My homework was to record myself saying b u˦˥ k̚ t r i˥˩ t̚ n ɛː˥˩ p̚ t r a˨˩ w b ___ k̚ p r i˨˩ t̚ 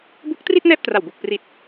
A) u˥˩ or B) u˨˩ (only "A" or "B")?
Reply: B